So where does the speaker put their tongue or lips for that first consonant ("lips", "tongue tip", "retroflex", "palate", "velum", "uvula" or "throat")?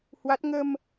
throat